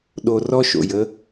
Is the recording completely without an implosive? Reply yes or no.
no